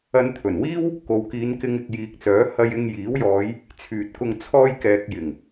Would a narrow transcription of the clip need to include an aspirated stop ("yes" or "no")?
yes